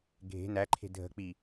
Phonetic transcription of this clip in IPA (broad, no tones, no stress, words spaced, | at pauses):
ɡʱe̤ næǃʰe̤ dʱə̤k͡pi